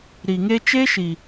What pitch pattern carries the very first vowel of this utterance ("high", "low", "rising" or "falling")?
low